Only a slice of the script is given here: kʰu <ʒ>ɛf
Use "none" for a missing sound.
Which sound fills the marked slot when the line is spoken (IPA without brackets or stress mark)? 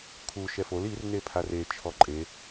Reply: ʃ